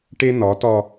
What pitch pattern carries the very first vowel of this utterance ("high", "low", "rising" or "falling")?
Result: high